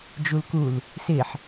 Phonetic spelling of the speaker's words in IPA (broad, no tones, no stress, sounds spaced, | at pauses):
d͡ʒ u l k u l | s ɪ ħ